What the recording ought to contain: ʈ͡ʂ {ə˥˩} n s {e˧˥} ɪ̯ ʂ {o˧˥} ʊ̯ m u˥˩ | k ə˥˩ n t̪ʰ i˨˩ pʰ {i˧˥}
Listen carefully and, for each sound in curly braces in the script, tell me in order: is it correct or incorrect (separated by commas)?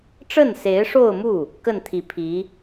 correct, correct, incorrect, correct